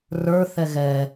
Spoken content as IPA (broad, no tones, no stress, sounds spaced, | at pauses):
r ə˞ θ ɛ ɣ ɛ